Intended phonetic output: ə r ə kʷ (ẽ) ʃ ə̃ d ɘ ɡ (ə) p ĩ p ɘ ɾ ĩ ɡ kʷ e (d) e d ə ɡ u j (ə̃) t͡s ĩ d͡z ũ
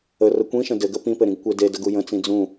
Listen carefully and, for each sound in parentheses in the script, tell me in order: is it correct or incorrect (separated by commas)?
incorrect, correct, correct, correct